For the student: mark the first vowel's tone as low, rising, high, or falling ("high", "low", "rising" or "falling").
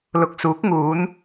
rising